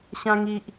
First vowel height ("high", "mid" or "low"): low